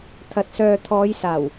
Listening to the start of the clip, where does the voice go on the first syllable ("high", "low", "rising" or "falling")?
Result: low